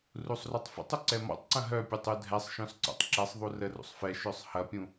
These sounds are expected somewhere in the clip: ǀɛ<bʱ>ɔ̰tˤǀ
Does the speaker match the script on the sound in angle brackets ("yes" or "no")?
no